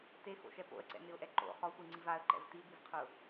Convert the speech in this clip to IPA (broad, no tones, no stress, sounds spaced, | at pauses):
t e x o̰ ʃ ɛ p o̰ ə̯ ǀ ɛ̰ n ɪ ʊ̯ ʔ ɛ ǃ o̰ χ ɔ sʷ i ŋ͡ǀ i v a ə̯ ǃ ɛ̰ v t i b i v qʰ ʊ